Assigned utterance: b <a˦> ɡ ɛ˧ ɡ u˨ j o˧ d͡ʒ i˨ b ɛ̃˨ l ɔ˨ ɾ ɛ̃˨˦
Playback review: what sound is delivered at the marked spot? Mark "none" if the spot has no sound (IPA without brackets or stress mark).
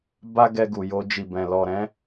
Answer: a˦